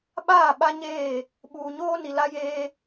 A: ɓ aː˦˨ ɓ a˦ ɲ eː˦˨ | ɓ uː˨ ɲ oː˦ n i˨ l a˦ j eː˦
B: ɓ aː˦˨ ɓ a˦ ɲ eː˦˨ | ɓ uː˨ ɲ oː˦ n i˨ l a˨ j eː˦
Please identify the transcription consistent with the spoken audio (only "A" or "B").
A